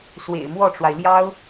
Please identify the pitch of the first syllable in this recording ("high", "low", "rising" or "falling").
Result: low